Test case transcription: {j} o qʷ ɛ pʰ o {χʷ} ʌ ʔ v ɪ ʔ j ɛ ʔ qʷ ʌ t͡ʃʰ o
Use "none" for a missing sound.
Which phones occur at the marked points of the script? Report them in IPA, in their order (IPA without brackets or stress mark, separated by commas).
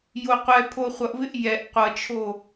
j, χʷ